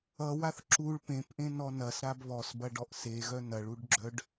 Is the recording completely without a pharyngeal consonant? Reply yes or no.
yes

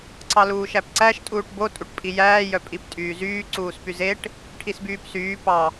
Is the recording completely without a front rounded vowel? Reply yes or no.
no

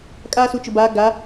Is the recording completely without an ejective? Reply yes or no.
no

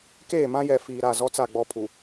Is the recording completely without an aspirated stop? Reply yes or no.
no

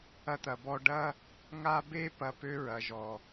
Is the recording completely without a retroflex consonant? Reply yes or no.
no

